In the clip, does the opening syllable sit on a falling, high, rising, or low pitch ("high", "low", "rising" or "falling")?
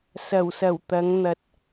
low